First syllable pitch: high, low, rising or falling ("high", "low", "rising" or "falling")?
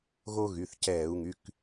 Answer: high